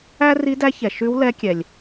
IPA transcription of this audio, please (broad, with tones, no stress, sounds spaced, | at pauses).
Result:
æ˥ r i˧˥ d æ˧˥ ç ɛ˩ ʃ ʉ˧˥ w l ɛ˧˥ kʲ ɛ˩ lʲ